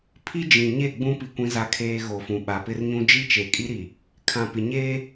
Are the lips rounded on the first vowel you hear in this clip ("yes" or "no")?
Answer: no